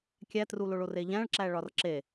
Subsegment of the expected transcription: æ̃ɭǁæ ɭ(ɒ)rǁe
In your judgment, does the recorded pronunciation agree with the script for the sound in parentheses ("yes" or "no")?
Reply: yes